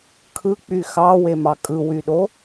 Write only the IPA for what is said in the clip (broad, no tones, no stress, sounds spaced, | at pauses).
kʰ ɯ k͡p y x ɑ w e m ɑ kʼ ɯ w y ɗ o